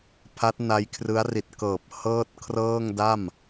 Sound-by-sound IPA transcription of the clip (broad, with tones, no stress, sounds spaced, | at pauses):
pʰ a˦˥ t̚ n a˦˥ j kʰ r ɯ˦˥ a̯ r i˨˩ t̚ k ɤː˨˩ p̚ h ɤː˥˩ t̚ kʰ r ɤː˥˩ ŋ d a˥˩ m